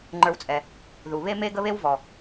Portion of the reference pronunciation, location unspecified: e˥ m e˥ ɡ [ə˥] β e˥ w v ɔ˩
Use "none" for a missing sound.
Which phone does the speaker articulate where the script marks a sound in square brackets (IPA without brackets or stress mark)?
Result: ə˥